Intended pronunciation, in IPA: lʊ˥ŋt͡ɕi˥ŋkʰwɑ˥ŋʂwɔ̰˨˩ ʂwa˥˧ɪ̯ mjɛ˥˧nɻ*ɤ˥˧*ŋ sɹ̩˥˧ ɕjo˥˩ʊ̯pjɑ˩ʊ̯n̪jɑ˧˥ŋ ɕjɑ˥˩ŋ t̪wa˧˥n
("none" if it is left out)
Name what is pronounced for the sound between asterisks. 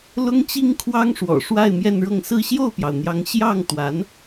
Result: ɤ˥˧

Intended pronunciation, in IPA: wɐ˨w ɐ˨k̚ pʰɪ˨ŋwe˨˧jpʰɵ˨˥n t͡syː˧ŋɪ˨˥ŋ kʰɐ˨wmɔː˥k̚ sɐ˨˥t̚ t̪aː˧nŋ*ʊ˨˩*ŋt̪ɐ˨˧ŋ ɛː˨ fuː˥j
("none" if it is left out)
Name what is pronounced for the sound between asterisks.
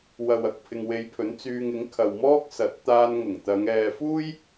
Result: ʊ˨˩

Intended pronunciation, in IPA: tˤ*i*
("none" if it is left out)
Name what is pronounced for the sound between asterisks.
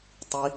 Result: i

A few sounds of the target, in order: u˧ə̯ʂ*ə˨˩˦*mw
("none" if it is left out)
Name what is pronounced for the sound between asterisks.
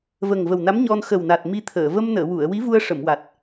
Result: ə˨˩˨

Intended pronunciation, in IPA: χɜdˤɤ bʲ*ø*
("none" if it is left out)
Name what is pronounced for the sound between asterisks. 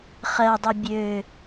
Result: ø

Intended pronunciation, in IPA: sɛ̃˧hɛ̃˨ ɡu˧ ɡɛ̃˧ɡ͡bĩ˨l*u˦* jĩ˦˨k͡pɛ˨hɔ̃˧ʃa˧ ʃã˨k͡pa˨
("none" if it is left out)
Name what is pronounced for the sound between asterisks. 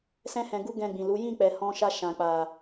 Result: u˨˦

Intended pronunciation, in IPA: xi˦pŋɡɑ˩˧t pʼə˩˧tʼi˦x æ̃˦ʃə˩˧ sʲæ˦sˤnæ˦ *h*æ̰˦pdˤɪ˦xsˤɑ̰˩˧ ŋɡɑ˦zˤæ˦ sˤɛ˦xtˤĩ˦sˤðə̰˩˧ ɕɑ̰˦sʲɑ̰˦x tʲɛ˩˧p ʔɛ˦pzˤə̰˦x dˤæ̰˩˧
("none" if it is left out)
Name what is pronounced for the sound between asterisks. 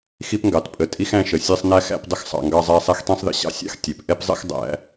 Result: x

